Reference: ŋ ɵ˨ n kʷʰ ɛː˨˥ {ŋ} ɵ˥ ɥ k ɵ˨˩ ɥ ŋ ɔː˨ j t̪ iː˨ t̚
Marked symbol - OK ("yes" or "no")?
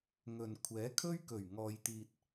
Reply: no